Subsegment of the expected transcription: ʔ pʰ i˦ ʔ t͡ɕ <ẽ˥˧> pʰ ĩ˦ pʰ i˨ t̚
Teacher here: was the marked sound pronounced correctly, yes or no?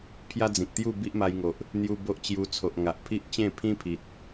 yes